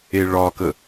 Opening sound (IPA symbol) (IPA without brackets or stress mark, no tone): e